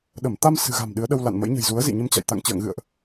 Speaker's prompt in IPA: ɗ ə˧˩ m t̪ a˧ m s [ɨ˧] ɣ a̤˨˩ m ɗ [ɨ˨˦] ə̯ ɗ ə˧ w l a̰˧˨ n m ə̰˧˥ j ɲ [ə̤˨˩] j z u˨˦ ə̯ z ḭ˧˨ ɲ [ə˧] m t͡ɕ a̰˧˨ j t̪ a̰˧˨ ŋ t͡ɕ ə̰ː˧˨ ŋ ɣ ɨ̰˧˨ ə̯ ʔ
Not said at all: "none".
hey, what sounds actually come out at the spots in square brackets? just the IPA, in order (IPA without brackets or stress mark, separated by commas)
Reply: ɨ̤˨˩, ɨ˨˦, ə̤˨˩, ə˧